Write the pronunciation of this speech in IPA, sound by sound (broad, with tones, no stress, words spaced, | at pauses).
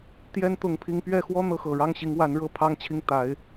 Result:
t̪jɛ˥nt̪ʊ˧˥ŋ pʰi˥ŋ pɥɛ˥˩xwɔ˥ n̪ɤ˧˥xɤ˨˩ ɻɑ˥˩ŋɕi˧˥ŋwa˧˥nɻɤ˥˩ pʰɑ˥ŋt͡ɕʰi˥˩ŋ t̪a˧˥ɪ̯